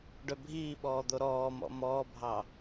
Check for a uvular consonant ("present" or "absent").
absent